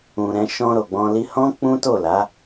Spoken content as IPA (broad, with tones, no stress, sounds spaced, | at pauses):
ũ˨ ɾ ɛ̃˧ ʃ ɔ̃˧ ɾ o˨ ɡ͡b ɔ̃˧ l i˦ h ɔ̃˦ k͡p ũ˦ t o˦˨ l a˨˦